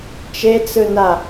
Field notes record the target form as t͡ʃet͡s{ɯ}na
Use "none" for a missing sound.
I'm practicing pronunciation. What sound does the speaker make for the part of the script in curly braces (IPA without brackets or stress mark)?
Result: ɯ